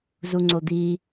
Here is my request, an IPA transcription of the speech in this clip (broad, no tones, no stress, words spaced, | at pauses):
zuŋ͡ǀod̪i